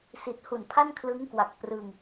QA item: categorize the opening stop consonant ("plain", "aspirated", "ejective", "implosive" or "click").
plain